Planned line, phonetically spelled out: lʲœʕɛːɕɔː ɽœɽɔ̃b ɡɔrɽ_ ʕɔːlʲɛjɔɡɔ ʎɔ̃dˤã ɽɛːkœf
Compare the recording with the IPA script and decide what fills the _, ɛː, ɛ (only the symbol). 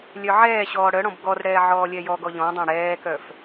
ɛː